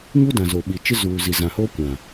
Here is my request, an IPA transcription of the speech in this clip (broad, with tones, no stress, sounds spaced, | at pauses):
ɲ u˦ d ã˨ z o˨ ɓ i˨ t͡ʃ ɪ˦ z uː˨ z i˨ z ã˨ h oː˦ kʷ ã˨